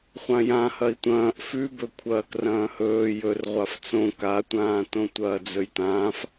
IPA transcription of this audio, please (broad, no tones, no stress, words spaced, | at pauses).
χʷãjãhɐi̯ tʷɐ̃ːʔ fʉbɵ kʷʰɐːkrɐ̃ːhɵː jɵrʁʷaf t͡sõ katʷãːtõ tʷɐːd͡zɵjtãːf